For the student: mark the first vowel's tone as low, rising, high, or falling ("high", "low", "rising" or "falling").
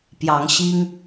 rising